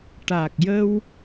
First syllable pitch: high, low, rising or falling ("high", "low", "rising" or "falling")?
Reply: low